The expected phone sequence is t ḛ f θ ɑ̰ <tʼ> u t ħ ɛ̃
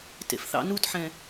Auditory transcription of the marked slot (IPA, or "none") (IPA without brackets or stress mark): n